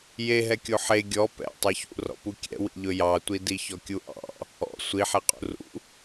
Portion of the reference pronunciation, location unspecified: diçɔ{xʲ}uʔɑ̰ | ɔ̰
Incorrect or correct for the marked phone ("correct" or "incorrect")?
incorrect